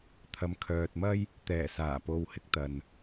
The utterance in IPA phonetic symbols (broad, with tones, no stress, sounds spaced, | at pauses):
t̪ʰ ɐ˨ m kʰ œː˨ t̚ m ɐ˥ j | t̪ ɛː˨˩ s aː˨˩ p o˨ w h ɪ˧ k̚ t̪ ɐ˨ n